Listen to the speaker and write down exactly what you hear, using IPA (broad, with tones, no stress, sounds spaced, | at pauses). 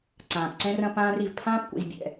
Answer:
ǀ ãː˨ p ǀ ɛ̃˦ r ɐ̃˦ p ãː˦ r i˨ v pʰ ãː˦ p kʷ ḭ˨ z bʲ ɛ̰˦˨